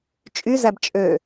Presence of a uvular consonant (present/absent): absent